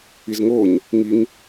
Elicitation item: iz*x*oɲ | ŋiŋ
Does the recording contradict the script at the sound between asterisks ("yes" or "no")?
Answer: yes